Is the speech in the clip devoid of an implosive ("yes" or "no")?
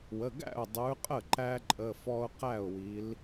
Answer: yes